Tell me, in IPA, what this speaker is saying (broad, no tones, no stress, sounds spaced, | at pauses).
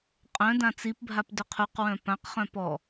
qʼ œ̃ d ã t͡s i p bʱ a p d ʏ qʰ u q w œ̃ p ã q χ œ̃ p ɔ